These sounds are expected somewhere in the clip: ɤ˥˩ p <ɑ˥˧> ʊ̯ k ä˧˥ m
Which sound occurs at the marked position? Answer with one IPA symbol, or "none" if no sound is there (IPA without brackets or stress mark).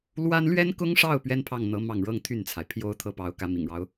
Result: ɑ˧˥